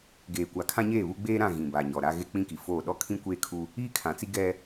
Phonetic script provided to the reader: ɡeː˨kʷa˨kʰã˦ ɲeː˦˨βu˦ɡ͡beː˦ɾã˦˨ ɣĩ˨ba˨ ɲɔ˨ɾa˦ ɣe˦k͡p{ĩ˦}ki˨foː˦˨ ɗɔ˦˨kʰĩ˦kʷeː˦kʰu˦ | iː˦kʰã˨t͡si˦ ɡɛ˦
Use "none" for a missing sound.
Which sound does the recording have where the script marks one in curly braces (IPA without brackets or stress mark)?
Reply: ĩ˦